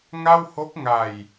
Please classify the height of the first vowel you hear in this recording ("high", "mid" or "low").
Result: low